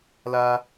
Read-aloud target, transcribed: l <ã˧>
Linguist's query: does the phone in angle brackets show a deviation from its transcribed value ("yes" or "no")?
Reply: yes